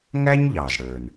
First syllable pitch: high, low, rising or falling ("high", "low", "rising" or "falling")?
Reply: high